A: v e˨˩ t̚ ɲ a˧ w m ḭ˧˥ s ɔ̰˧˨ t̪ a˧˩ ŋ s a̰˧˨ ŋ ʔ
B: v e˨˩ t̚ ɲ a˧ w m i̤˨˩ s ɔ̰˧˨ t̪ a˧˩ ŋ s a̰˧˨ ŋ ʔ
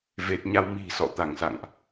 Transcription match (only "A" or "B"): B